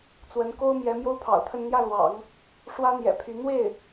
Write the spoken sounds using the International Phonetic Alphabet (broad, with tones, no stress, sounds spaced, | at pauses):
t͡s w ə˧˥ n k o˥ ʊ̯ m j ɛ˧˥ m j o˥ ʊ̯ pʰ ɑ̰˨˩ ʊ̯ t̪ʰ ə˥˧ n n̪ j ä˥˩ l w ɑ̰˨˩˦ ŋ | ʂ w ä˥ n̪ j ɛ̰˨˩ pʰ y˧˥ n̪ w e˥˩ ɪ̯